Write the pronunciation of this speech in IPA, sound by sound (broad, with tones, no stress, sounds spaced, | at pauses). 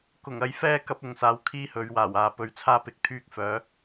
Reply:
k ʊ˨˩ ŋ ɐ˧ j f ɛː˥ k ɐ˧ p̚ ʊ˨˧ ŋ s aː˨˧ w kʰ iː˥ h ɵ˨˧ ɥ w aː˨˩ w aː˨ p ɵ˧ ɥ t͡sʰ aː˥ p ɪ˨ k̚ t̪ʰ yː˥ k̚ f œː˨˥